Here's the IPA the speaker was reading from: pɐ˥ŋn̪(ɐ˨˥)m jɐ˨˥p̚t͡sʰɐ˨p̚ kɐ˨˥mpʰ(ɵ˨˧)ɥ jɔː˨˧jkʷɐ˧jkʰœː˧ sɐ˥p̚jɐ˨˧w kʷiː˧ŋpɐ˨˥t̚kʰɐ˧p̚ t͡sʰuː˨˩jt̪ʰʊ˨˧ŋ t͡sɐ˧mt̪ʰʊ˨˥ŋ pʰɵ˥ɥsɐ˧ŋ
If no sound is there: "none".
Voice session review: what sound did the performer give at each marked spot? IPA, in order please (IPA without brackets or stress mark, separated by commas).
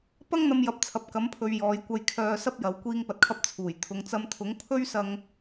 ɐ˧, ɵ˨˧